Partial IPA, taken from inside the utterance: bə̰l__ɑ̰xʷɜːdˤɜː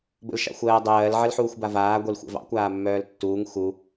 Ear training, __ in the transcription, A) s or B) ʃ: B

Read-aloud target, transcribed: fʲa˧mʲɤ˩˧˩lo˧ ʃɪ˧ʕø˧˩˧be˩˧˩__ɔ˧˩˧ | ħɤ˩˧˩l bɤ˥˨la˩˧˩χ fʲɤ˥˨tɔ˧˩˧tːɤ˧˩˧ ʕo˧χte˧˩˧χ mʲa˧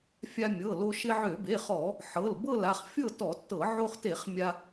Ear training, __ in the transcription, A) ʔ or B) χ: B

